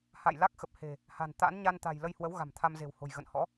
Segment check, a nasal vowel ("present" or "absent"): absent